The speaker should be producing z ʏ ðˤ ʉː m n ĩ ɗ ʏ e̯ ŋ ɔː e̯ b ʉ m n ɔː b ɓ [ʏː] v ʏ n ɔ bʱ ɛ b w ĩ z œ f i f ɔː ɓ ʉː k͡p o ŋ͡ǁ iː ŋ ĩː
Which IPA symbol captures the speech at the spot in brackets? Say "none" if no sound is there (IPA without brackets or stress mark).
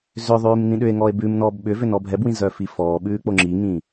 ʏ